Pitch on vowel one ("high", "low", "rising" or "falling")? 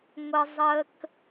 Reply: low